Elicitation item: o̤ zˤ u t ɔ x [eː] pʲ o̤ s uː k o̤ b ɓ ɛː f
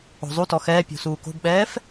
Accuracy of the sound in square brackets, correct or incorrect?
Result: incorrect